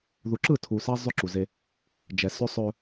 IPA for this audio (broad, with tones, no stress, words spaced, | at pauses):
ðu˨ǁɯ˦˨tʰu˨ sa˦ zˤʏ˦ǁu˨ze˦ | d͡ʒɛ˨sʏ˦ sˤɵ˦